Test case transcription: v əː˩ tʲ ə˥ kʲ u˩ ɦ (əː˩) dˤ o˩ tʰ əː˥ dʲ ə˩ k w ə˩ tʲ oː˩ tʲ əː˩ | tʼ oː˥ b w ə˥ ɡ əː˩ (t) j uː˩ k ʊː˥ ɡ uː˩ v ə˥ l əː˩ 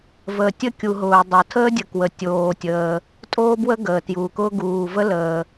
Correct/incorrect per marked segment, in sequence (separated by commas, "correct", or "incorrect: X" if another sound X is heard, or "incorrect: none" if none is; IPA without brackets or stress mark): incorrect: ʊː˩, correct